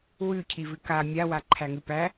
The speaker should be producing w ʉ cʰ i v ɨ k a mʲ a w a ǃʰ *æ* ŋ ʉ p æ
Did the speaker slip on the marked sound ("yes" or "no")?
no